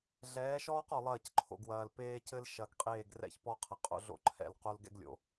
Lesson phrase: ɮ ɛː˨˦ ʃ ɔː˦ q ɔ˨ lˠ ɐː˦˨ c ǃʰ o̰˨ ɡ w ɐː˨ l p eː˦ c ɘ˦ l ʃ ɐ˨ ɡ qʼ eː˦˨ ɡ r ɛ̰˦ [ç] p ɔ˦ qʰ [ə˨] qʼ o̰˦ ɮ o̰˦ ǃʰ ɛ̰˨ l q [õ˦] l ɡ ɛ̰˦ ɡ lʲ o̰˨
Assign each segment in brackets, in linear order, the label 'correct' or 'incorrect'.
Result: correct, incorrect, incorrect

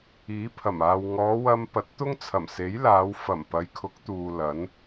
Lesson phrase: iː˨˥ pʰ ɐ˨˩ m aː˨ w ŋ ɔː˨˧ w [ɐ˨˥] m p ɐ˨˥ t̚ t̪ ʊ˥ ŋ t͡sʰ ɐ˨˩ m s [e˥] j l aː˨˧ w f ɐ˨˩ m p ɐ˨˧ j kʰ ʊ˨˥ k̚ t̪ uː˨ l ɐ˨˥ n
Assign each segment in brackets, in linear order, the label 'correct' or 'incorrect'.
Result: incorrect, incorrect

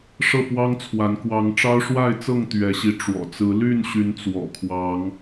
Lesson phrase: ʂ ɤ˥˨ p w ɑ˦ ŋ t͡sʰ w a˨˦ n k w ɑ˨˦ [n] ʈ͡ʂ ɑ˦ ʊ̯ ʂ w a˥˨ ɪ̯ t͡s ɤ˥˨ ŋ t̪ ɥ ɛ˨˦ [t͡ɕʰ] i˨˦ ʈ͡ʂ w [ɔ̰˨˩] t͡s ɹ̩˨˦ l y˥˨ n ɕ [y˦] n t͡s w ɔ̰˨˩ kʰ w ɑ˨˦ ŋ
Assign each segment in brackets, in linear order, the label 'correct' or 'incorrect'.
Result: incorrect, incorrect, correct, incorrect

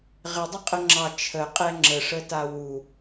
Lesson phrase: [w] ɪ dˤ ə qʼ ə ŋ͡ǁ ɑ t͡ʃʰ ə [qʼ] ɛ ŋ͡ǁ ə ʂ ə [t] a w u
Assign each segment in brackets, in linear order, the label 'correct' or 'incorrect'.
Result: incorrect, correct, correct

